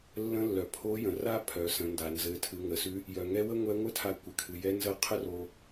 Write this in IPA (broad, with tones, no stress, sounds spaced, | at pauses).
lː ə̃˧˥ lː œ˩ pʰ o˧˥ j ə̃˩ r a˥ pʰ œ˩˧ s ə̃˩˧ n d a˩ n z ɘ˩˧ tʰ ɨ˩˧ ŋ ə˩ s ʉ˧˥ | j œ˩ ŋ ɛ˧˥ w ə˥ ŋʷ ɛ˧˥ ŋʷ ɘ˥ tʰ a˧ kʷ ɘ˩ kʰ ɨ˩ j ɛ˧˥ n z ə˧˥ qʰ ə˥ r o˧